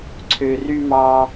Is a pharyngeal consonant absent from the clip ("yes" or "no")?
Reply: yes